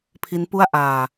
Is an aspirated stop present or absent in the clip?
present